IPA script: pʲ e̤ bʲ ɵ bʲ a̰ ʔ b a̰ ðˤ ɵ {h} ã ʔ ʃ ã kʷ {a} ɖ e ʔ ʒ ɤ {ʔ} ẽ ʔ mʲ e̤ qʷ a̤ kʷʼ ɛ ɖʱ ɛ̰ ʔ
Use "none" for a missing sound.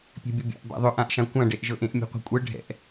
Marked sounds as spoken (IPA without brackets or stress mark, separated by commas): ʔ, ã, ʔ